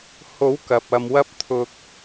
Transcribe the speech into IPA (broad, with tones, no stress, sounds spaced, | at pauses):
h o˨˥ w k ɐ˨ p̚ ɐ˧ m w ɐ˥ p̚ t̪ʰ ʊ˧ k̚